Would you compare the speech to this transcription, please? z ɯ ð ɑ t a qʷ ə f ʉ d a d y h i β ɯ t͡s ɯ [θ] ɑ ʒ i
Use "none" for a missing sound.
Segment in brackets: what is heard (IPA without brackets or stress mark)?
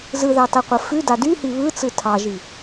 tʰ